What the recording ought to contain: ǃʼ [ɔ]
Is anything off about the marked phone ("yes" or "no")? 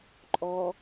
no